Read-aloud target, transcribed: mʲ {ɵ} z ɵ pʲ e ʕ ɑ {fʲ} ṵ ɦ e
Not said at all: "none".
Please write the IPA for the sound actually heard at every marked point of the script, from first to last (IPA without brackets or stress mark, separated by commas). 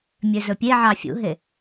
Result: ø, fʲ